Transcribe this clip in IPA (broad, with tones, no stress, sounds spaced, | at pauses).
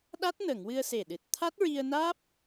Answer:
ɗ a˦˥ t̚ n ə˨˩˨ ŋ w ɨ˧ ə̯ s e˨˩ ɗ ɨ˨˩ t̚ t̪ʰ a˦˥ t̚ ɹ i˧ ə̯ n aː˦˥ p̚